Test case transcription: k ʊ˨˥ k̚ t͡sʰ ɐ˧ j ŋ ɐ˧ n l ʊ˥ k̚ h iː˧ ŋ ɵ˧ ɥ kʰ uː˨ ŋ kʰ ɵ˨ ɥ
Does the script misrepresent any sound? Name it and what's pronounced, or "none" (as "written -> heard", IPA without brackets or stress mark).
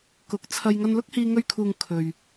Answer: none